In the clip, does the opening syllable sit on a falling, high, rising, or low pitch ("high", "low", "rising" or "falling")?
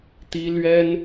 high